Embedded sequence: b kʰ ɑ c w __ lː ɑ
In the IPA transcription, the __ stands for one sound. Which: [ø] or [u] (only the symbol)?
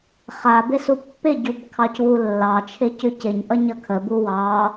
u